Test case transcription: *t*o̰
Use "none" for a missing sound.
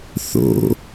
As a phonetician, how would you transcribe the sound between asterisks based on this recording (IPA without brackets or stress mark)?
θ